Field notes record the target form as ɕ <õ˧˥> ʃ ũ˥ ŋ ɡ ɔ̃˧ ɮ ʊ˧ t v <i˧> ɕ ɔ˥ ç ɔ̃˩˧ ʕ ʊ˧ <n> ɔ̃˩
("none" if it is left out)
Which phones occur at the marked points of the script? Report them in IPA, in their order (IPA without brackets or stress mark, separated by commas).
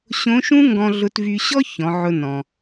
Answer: õ˧˥, y˧, n